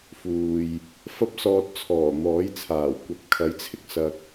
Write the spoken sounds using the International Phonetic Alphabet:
f uː˨ j | f ɐ˥ p̚ s ɔː˧ t̚ t͡sʰ ɔː˨˩ n̪ ɔː˨˥ j t͡sʰ aː˨˩ w kʷ ɐ˨˥ p̚ kʰ ɐ˨˥ j t͡sʰ ɪ˥ k̚ s ɐ˧ k̚

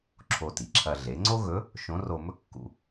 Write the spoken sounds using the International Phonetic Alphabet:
ǁʰ o˧ t i˩ ǁʰ ɐ˧ ɮ e˩˧ ŋ͡ǀ o˥ ɣ ɵ˧˥ | ʃ õ˧˥ r o˧ m ɵ˥ kː ṵ˧

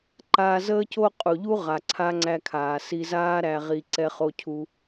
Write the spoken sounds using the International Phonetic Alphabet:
ǃ aː˧ z əː˥ c o˥ qʼ u˩ ʎ u˥ ʁ a˩ ǀʰ a˥ ŋ͡ǀ æ˧ kʰ aː˩ s i˧ z aː˥ ɾ æ˧ ʁ i˧ ǀ ɛ˧ χ o˧ cʰ u˧

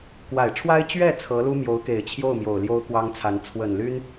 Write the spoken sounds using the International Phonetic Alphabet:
k w a˨˩ ɪ̯ ʈ͡ʂʰ w a˥ ɪ̯ t͡ɕ ɥ ɛ˥˩ t͡sʰ ɤ˧˥ l u˥ m j o˧˥ ʊ̯ k e˨˩ ɪ̯ t͡ɕʰ j o˥˩ ʊ̯ m j o˨˩ ʊ̯ l j o˥ ʊ̯ k w ɑ˥ ŋ t͡sʰ a˧˥ n t͡sʰ w ə˨˩ n l y˥ n

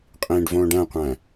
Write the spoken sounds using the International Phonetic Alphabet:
qʼ ĩː ɖ v õː ɖ æ̃ qʷ æ̃

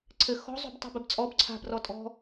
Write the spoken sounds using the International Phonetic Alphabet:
ǀʰ ɘ x ɔ̤ zˤ ṳ b tˤ e̤ b ɘ b t͡sʼ ɔ b ǀʰ a̤ b r ɔ tʼ ɔ̤

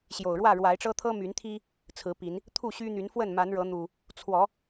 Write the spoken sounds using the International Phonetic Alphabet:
ɕ j o˨˩ ʊ̯ ɻ w ä˥˨ ɻ w a˨˦ ɪ̯ ʈ͡ʂ ɤ˦ t̪ʰ ɤ˦ m y˨˦ n t̪ʰ i˦ | t͡sʰ ɹ̩˨˦ p i˨˦ n | t̪ʰ u˥˨ ɕ y˦ n̪ y˨˦ n f w ə˥˨ n m a˨˦ n ɻ ɤ˨˦ n̪ u˨˩ | t͡sʰ w ɔ˨˦

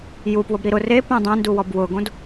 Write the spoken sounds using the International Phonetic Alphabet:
j u p w ʊ b ɾ i ɾ ʊ r e p õ dˤ ẽ n d u w ɔ b w ʊ ɡ õ d

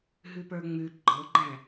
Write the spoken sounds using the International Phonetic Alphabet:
ɦ ʉ p ə˞ ŋ͡m ʉ ɡ͡ǃ ɤ ɡ͡ǃ æ̃

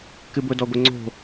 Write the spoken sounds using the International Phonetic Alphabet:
k ɨ b ʊ d ɔ ɡʷ ɪ ŋ͡ǀ o̤

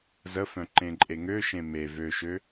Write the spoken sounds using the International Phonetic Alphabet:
z ə f œ̃ ǃ ẽ ǃʼ e ŋ ø ʃ ẽ m e v ø ʃ ø

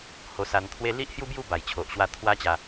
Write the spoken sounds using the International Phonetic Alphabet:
h o˧ s a˧ n t̪ʰ w e˦ l i˦ ʔ h j u˦ b j u˥˧ b a˨˩ j t͡ɕʰ o˨ ʔ ɕ w a˧ t̪ʰ w a˦ t͡ɕ a˧

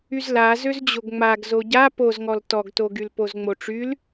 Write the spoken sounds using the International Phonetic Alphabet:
y z l a z ø z d͡ʑ o ɡ ŋ͡m a ɡ z o ɟ a p o z ŋ ɔ l t ɔ ɡ t o ɡ y l p o z ŋ͡m o ʈ͡ʂ y l

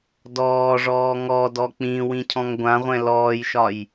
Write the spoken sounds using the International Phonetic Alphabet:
d ɔː ʐ ɔː ŋ ɔ d ɔ k͡p ĩ w ĩ cʰ ɔ̃ ŋ ɡʷ ã ʁʷ ɛ̃ l ɔː j ʃ ɒ j

